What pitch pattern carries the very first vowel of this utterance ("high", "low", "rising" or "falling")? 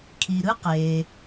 low